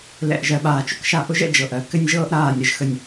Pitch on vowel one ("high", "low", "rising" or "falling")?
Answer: low